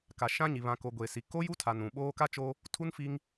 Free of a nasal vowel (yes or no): no